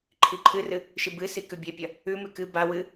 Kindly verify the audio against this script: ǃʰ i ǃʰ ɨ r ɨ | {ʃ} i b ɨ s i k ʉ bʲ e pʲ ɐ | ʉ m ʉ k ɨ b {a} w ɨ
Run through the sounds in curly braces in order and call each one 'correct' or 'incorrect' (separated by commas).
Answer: correct, correct